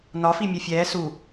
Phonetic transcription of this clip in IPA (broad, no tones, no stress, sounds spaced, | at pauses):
n ɒ f i mʲ ʌ fʲ ɛː s u